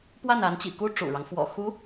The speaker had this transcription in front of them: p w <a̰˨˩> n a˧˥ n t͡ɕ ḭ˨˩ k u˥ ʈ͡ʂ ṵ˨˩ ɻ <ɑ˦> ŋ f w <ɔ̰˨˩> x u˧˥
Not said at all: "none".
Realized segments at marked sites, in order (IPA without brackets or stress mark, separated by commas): a˥˩, ɑ˦, ɔ̰˨˩